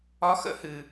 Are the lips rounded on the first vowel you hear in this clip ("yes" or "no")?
yes